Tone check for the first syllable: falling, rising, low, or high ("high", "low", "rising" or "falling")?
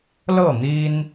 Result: falling